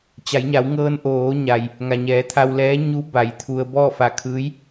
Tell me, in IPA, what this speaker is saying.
t͡ɕ a˩˧ j ɲ a˩˧ w ŋ ɤː˧ n ʔ oː˩˧ ɲ a˩ j | ŋ a˩ ɲ ɛː˩˧ t̪ʰ a˧ w l ɛː˧˥ ɲ u˧˥ b a˩˧ j t̪ʰ u˧ ə̯ b ɔː˥˨ f a˧˩ kʰ ɯː˧˥ j

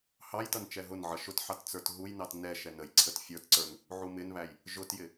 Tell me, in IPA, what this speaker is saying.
h ɑ j t ʌ n t͡ʃ ɛ ɦ ʊ n ʕ ʌ ʃ ʊ t ħ ɑ t t͡s ə˞ t ɦ u j n ɑ t n ɛ ʃ ɛ n ə j ǀʰ ə t fʲ ə˞ t ǀ ə˞ n | ʕ u m ɪ n β æ j | ʒ ʊ t j ɪ

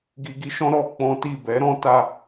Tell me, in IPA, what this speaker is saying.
ɡ i˧ ɡ i˦ ʃ ɔ̃˦ ɾ ɔ˧ k͡p ɔ̃˦ t i˦˨ b ɛ˨˦ ɾ ɔ̃˦ t a˧

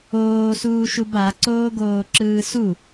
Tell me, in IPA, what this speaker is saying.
oː s uː ʃ u b a ǀ oː ɡ oː ǁ ɯː s u

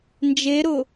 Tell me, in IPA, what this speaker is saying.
n d͡ʒ e ɾ ʊ

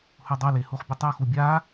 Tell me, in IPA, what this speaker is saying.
h u dˤ ɵ l e h u χ bʲ ʉ tˤ o x u bʲ a

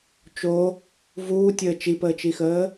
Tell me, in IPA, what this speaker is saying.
t͡ʃ o | v uː tʲ əː t͡ʃ i p əː t͡ʃ i x əː

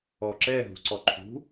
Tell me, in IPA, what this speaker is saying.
ɔ ǁ ɛ ɦ ṳ ǀ ɔ ǃʰ ṳ

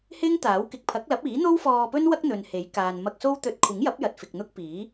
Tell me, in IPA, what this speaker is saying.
h ɪ˥ ŋ t̪ aː˨˥ w k ɪ˨˥ k̚ pʰ ɐ˨˥ k̚ l ɐ˨˥ p̚ iː˨˥ n̪ o˥ w f ɔː˧ p ɵ˥ n w ɐ˥ k̚ n̪ ɵ˨ n h e˨˥ j k aː˨ n m ɐ˧ k̚ s o˥ w t̪ ɵ˧ t̚ kʷʰ ɪ˨˥ ŋ j ɐ˨˥ p̚ j ɐ˨ t̚ f ɪ˨ k̚ n̪ ʊ˥ k̚ p iː˨˥

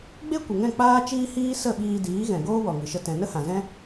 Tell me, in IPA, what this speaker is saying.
ɡ͡b e˦ kʷ ə˨ ŋ ɛ̃˦˨ k͡p aː˦ t͡ʃ iː˦ h iː˦ s ə˦˨ ɓ iː˧ d iː˨˦ ɣ ɛ̃˨ ɡ oː˦ w ɔ˨ ŋ ɨ˨ ʃ ə˦ t ɛ̃˨ n ə˦ h ã˨ z ɛ̃˦

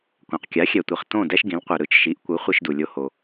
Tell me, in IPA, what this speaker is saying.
kʷ ã˩ q kʲ a˩˥ xʲ ɛ˩ tʷ i˩ χ t õ˥˩ d ɛ˥ ʃ ɡ ĩ˩˥ l qʷ e˩ ɾ ɯ˩˥ t͡ʃ ʃ i˩˥ ʔ kʷ ɯ˩˥ χʷ i˧ ʃ d u˩ lʲ o˧ h o˩

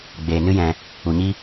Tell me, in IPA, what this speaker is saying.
ɡ͡b eː˧ n ɨ˦ j ɛ̃˧ | u˧ ɲ i˦

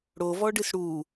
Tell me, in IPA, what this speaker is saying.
ɽ o v ɔ ɖ ɨ s ɽ u

